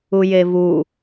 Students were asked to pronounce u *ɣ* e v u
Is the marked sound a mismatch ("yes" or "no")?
yes